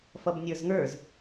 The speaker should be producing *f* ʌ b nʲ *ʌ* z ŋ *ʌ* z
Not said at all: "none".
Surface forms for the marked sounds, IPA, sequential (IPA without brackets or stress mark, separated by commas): f, ə˞, ə˞